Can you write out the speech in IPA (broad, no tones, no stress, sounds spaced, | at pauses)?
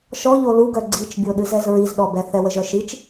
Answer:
ʃ ɔ ʎ o l u ɡ œ ɡ͡ǀ i t͡ʃ bʲ o ɗ ɨ z ɛ z ɹ i z ɗ ɔ b ɛ θ ɛ w ə ʒ œ ʃ i t͡ʃ